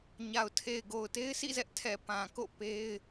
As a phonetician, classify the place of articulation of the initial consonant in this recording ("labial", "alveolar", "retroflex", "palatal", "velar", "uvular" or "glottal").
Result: palatal